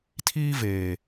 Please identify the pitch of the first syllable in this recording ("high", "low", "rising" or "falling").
high